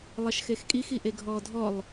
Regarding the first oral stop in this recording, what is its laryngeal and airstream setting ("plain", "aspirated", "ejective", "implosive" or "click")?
ejective